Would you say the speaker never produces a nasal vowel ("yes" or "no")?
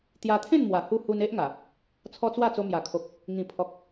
no